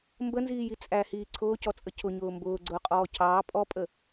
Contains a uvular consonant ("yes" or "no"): yes